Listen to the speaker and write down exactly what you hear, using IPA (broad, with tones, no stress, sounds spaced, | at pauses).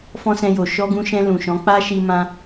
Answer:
f ɔ̃˦ s ɛ̃˧ j o˨ ʃ ɔ˧ ɡ ũ˧ ʃ ɛ̃˧ l ũ˨ ʃ ɔ̃˨˦ k͡p a˦ ʃ i˧ m ã˧